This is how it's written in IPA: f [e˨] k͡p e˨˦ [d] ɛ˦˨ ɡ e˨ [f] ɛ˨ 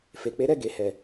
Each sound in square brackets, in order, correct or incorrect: correct, incorrect, incorrect

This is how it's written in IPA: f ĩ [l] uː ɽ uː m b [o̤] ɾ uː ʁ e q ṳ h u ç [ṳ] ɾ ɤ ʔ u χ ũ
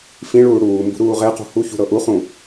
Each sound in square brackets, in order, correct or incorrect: incorrect, incorrect, correct

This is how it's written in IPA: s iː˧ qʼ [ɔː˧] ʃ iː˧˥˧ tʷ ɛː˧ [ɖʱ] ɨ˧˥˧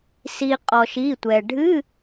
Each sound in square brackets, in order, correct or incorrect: correct, correct

